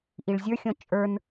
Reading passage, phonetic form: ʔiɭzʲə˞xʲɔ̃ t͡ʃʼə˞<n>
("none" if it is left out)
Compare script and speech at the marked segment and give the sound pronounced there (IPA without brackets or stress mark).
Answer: n